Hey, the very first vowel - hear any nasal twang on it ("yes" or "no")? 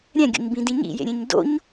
yes